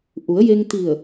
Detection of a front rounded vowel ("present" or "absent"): absent